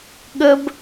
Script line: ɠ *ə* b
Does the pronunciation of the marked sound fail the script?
no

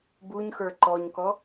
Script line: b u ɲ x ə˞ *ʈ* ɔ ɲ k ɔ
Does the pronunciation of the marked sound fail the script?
yes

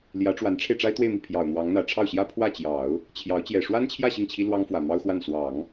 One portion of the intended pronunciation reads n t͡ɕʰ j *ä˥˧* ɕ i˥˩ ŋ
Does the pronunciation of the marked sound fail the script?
no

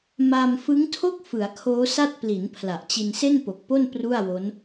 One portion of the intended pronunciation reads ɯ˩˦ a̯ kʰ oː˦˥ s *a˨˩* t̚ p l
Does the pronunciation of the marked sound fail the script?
yes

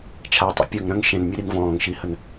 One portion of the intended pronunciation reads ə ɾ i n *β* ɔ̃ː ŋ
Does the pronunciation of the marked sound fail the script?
yes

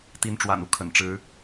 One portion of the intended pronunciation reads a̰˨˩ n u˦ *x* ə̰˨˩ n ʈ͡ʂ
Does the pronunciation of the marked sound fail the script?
yes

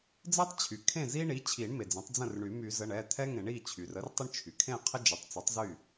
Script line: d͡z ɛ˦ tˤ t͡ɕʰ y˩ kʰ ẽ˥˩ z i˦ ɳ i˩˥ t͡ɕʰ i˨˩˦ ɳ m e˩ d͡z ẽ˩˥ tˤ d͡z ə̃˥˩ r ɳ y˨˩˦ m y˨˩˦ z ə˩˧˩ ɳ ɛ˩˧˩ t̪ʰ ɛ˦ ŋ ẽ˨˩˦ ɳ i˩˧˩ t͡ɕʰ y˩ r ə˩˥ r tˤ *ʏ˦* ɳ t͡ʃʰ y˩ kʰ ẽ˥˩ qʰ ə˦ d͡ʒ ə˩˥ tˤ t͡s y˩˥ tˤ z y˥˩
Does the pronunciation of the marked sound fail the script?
yes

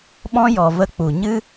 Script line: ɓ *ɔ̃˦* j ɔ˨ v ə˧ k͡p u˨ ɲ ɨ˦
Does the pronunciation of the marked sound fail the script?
no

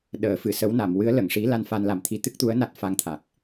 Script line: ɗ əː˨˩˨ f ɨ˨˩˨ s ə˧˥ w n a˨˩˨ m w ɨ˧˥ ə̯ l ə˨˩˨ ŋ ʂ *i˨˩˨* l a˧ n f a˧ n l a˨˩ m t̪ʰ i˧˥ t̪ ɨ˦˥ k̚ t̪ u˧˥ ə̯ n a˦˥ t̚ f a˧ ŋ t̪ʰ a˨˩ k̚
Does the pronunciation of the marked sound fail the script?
yes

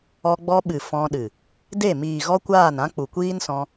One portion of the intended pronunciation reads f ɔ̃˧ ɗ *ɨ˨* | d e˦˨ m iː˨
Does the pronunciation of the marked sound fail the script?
no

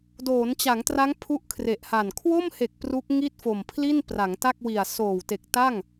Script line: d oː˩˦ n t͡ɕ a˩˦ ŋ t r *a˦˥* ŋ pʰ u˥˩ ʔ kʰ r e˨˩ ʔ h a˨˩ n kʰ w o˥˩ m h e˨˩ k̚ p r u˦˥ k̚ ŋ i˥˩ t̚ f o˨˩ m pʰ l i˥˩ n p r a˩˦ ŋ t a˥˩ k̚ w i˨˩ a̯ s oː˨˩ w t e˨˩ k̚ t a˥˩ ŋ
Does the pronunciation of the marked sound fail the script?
no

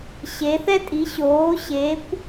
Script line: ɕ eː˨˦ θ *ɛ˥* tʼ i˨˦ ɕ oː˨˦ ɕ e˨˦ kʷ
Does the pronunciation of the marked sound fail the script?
no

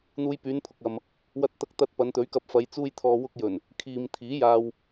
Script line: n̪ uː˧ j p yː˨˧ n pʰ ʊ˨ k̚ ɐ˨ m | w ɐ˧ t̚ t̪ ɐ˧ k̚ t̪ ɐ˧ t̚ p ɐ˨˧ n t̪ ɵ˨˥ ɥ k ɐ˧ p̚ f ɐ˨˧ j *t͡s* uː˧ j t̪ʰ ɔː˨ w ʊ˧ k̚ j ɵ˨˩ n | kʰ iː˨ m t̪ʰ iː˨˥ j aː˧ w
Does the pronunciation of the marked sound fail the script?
no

